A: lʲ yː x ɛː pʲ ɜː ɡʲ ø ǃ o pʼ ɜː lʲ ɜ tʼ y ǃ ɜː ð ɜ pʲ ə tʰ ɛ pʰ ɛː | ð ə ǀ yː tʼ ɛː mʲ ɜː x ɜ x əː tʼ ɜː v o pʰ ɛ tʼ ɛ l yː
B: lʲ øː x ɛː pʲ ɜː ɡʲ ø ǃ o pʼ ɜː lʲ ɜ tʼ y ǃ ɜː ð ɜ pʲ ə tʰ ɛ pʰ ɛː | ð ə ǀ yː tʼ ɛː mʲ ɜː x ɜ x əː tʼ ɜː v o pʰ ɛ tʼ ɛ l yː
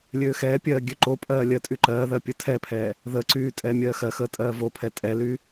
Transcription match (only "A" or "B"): B